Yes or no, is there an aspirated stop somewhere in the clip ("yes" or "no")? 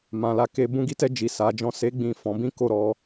no